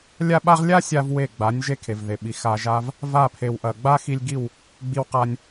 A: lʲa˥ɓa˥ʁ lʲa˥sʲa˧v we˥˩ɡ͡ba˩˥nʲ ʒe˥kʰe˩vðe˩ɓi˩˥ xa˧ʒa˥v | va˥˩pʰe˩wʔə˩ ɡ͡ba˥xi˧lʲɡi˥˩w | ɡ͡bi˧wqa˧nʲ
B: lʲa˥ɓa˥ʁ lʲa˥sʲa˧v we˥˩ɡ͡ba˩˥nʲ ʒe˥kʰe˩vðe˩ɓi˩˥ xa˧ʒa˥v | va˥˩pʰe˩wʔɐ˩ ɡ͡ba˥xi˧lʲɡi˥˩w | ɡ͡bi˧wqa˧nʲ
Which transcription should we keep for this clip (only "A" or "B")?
B